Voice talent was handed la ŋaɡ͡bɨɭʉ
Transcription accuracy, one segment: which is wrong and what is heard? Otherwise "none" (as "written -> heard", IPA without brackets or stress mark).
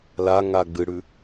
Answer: ɭ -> ɽ